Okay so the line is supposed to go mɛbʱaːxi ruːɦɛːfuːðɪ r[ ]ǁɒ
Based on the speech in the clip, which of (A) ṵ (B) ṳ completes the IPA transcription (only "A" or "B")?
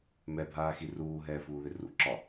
A